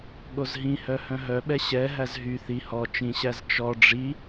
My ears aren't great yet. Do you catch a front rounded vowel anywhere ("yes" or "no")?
yes